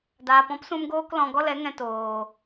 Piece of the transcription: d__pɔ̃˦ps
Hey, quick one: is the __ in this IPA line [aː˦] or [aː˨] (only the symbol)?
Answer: aː˨